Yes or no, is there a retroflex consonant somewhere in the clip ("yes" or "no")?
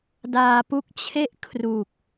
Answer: no